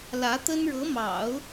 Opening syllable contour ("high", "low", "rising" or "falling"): rising